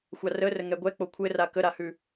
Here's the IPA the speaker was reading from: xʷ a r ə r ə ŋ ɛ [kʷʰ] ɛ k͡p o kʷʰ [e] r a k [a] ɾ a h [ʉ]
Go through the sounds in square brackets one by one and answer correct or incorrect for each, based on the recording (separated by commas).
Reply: incorrect, incorrect, incorrect, correct